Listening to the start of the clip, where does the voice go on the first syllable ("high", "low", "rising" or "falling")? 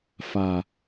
low